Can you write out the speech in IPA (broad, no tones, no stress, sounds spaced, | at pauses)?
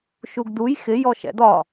ʃ u ɡ d u j x ɪ j ɔ ʃ ɛ̰ d ɒ